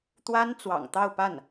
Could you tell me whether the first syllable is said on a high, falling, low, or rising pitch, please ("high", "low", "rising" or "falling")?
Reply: high